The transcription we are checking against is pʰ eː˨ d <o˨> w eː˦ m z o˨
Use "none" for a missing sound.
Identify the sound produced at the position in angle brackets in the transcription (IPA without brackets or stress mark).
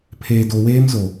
o˨